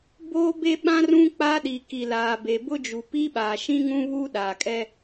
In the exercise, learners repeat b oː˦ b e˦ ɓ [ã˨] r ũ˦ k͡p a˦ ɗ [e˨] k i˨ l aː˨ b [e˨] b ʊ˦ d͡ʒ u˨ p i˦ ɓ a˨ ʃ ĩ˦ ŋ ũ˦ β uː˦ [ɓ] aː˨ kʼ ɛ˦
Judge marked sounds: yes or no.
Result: no, no, yes, no

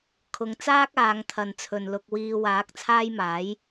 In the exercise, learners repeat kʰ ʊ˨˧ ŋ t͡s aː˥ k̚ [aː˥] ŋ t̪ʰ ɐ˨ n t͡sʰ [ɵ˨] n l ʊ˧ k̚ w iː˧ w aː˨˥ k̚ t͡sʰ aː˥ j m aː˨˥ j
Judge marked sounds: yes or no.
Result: no, yes

